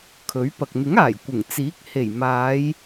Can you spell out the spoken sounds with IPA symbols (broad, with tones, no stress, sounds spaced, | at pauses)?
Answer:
kʰ ɵ˨˥ ɥ p ɐ˨ k̚ n̪ ɪ˨˥ ŋ aː˨˩ j kʷ ɪ˨˩ ŋ t͡s iː˨˥ k̚ h e˨˩ j m aː˨˧ j